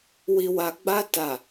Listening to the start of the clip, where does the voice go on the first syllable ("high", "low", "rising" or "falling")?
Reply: low